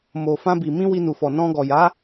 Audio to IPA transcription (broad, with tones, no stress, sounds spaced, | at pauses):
m o˨ f ã˧ b i˨ m ĩ˧ w i˧ n u˨ f ɔ˨ n ɔ̃˧ ɡ ɔ˨ j a˨˦